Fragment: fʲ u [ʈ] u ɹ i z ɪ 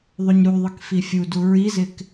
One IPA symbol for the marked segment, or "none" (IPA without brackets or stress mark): d